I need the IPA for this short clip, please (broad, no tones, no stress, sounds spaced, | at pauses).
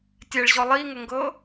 tʲ ɛ ɭ ʑ ɔ lˠ i ŋ ə ŋ ɡ ɤ